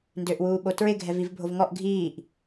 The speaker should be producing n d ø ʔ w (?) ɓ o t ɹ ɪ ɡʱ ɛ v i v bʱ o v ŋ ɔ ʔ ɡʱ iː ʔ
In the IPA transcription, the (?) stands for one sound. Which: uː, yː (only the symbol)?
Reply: uː